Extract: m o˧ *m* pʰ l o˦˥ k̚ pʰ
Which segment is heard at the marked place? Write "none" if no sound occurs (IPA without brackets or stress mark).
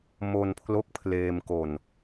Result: n